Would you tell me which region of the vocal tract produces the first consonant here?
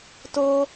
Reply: tongue tip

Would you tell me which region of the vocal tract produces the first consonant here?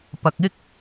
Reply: lips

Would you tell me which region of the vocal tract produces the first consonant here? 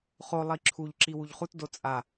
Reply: uvula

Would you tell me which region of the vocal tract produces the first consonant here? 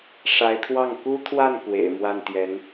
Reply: retroflex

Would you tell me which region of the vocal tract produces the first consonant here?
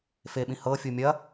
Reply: lips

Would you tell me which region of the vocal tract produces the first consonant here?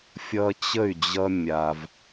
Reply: lips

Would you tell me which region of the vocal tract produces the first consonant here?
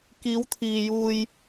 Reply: velum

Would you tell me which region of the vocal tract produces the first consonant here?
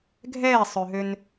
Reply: velum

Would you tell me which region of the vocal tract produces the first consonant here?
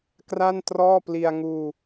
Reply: velum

